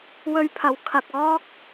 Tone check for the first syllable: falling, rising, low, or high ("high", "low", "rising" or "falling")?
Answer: high